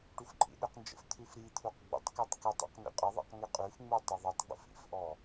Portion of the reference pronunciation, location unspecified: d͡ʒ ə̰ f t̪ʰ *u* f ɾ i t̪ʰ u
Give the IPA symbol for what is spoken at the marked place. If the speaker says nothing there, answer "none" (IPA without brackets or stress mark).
ʉ